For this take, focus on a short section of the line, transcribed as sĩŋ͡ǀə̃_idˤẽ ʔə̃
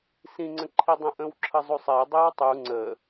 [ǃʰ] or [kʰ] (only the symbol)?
ǃʰ